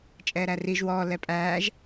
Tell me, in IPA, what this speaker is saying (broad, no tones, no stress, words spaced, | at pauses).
t͡ʃʼɛːɾæriʒ wɔː lɛpʼæːʒ